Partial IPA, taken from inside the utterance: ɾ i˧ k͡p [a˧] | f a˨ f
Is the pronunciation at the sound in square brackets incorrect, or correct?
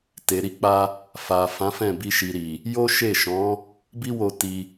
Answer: correct